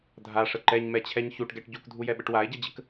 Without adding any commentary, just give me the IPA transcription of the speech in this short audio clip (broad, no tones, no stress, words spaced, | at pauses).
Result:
dʱaʂə ǃɛɲmɛt͡ɕʰɛɲ çuʈɡɛʈ ɟukdʱujɛɓəʈ wae̯ɟɛd͡ʑək